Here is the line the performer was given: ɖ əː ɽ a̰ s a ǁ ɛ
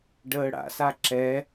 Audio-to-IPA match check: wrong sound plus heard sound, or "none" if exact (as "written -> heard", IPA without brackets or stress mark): none